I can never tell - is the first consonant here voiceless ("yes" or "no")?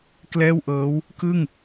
yes